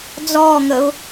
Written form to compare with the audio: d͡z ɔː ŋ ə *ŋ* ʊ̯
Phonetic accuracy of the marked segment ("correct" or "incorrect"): incorrect